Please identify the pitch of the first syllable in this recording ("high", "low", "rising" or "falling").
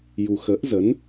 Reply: low